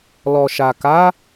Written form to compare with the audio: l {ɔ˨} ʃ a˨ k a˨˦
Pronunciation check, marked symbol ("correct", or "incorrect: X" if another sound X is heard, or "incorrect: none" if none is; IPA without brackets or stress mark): correct